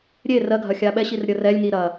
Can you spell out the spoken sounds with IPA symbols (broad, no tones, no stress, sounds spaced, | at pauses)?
ɾʲ e r ɜ ɡʱ ɐ xʲ a ɓ ɛ ɕ i r ɾʲ ə r ɛ lʲ ŋ i ɾ ɐ